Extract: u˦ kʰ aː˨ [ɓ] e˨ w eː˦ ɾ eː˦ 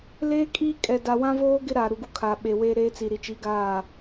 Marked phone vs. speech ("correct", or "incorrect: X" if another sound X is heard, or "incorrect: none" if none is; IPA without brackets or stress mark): correct